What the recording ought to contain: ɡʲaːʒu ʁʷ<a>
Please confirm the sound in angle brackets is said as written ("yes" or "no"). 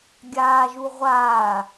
no